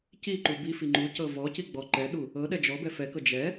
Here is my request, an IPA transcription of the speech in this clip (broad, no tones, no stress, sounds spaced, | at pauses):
c i ǃ u b i f i ŋ͡ǃ u c ɤ v ɔ c i ɡ͡b ɔ ǃ ɛ ɗ u | ɤ ɗ ɛ d͡ʒ ɔ b ɛ f ɛ k ɤ d͡ʒ ɛ